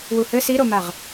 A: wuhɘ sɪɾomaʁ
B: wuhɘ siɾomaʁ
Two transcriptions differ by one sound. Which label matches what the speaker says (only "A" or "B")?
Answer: B